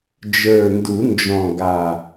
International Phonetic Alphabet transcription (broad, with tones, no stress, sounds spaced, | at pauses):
d͡ʒ ə˞˨˩ n d u˨˩˦ n d͡ʒ ɔ̃˨˩ ɡ a˨˩